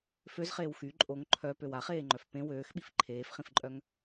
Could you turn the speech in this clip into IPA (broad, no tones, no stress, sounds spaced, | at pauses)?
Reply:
f ø z χ eː w x y ǃʼ o ŋ ǃʰ œ p ø w a χ eː ŋ͡ǃ œ f p ẽ w øː x ɓ i f ǃʰ eː f χ ĩ f ǃʼ œ ŋ